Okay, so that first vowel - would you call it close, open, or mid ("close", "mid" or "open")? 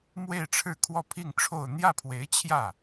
mid